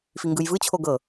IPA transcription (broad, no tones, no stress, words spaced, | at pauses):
fiŋɡɯjvɯt͡ɕʰo ɡɤ